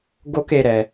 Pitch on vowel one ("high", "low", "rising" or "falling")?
high